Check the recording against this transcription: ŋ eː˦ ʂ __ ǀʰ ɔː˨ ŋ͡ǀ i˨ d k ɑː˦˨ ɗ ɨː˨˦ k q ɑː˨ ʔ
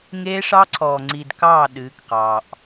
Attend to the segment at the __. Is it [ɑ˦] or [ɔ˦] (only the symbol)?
ɑ˦